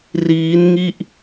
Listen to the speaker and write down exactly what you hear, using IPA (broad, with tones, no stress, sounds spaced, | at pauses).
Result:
r iː˦˥ n ŋ i˥˩ ʔ